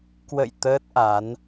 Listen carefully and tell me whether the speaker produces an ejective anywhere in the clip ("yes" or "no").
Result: no